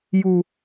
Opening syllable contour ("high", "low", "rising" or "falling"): high